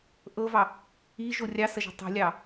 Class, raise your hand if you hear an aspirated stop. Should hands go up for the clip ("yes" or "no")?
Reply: no